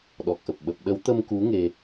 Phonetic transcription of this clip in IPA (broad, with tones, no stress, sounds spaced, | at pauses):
ɗ ɔ˨˩ k̚ ʔ ə˨˩ p̚ ɓ ə˨˩ p̚ ɗ ə˨˦ w t̪ ə˧ m k u˨˦ ŋ e˧